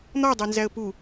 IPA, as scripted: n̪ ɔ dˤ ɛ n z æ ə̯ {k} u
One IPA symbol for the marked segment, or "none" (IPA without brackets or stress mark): p